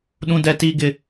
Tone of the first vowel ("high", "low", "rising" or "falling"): high